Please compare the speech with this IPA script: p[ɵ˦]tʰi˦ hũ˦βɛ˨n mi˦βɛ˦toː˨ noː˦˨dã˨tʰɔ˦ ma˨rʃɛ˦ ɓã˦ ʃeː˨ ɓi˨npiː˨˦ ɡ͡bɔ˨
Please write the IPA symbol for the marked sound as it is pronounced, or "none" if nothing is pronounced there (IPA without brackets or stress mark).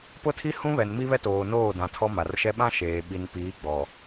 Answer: ʊ˦